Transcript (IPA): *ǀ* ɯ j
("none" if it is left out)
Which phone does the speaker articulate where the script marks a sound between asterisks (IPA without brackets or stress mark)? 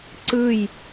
ǀ